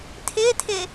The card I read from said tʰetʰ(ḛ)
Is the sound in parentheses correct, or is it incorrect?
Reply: incorrect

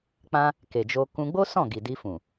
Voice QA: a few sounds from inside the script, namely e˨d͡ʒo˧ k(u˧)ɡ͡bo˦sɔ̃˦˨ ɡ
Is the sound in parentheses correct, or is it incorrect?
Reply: incorrect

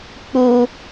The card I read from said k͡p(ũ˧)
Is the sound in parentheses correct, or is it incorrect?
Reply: incorrect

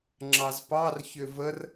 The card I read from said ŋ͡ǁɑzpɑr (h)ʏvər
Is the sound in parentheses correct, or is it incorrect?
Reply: incorrect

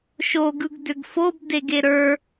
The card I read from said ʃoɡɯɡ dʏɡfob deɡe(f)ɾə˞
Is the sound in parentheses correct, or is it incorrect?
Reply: incorrect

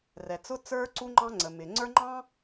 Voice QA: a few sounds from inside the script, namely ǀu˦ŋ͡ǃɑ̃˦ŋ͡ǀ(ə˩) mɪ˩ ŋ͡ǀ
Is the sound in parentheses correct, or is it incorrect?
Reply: correct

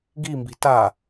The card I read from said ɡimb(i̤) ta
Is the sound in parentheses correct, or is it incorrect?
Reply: correct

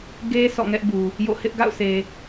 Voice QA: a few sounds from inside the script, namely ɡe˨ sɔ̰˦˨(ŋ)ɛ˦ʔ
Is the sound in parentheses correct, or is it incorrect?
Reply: correct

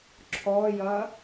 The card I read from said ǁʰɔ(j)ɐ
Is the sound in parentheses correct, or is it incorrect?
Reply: correct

